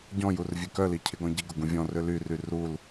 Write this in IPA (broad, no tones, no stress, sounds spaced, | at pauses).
ɟ ɔ̃ j u r vʲ ø k œ l i cʰ ɪ ɡ ɔ̃ ɟ i ɡ ʊ ɡ ũ vʲ ɔ̃ r ø l y r y r u l